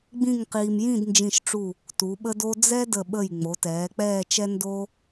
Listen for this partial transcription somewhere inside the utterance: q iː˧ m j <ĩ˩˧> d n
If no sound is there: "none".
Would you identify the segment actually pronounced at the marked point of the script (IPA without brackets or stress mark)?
ĩ˥˧